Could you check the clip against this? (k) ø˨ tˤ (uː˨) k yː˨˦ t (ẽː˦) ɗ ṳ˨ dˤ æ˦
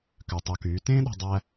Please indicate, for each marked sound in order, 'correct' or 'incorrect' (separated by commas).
correct, incorrect, correct